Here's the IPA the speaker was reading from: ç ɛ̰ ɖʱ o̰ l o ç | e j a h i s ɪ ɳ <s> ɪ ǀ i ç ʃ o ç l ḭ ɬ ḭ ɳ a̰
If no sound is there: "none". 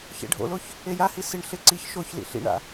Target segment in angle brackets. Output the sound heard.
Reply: ɬ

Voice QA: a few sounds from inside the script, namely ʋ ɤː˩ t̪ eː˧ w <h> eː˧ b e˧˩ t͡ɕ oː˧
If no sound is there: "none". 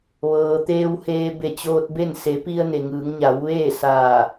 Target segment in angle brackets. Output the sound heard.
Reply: h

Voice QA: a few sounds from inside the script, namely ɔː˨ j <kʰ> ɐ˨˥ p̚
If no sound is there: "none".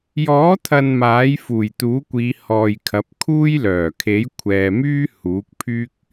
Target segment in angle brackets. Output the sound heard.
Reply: kʰ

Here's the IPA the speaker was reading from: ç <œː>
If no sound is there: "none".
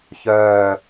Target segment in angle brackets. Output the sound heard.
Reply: œː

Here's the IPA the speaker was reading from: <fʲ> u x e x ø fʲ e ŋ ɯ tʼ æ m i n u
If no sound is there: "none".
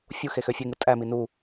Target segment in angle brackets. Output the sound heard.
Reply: fʲ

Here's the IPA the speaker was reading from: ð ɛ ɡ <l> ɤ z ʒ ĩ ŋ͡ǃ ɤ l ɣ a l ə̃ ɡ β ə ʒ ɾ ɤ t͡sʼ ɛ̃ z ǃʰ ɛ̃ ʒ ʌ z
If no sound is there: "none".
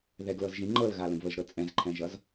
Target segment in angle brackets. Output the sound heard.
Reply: l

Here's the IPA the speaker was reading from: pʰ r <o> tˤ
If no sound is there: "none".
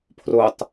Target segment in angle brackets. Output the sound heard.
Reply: o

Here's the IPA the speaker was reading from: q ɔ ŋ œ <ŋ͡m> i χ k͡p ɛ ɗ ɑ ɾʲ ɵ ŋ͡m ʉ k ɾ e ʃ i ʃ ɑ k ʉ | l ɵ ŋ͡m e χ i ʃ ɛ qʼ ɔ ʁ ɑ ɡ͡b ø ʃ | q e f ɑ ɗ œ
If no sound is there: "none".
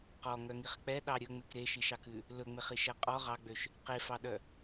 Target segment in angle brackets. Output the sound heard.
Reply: ŋ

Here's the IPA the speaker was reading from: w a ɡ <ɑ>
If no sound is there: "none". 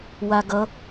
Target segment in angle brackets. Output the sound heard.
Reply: ʌ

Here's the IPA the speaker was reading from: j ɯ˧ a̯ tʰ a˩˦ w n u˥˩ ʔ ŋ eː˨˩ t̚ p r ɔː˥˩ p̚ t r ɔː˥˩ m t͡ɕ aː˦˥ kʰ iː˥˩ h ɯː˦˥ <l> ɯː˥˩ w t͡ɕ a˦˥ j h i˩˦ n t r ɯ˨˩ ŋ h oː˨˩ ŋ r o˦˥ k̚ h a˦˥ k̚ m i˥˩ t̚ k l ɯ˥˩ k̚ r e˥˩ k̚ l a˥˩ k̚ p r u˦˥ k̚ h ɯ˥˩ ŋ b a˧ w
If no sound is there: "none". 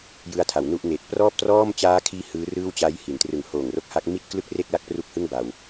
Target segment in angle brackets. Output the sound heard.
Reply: r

